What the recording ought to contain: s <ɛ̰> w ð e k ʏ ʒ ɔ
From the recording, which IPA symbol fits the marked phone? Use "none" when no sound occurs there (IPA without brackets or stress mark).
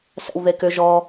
ɛ̰